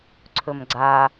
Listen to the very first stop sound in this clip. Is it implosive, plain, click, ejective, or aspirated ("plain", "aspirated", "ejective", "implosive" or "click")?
click